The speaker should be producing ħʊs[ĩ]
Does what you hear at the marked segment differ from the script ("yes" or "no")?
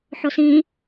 no